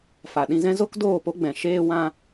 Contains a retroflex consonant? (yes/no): no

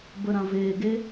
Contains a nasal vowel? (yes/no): yes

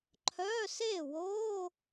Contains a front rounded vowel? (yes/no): yes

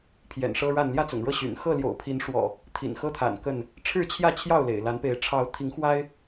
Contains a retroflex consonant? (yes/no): yes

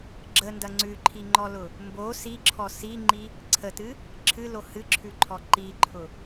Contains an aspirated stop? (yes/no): yes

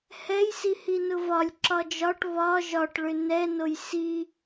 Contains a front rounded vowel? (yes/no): yes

